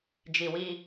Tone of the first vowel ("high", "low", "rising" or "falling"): low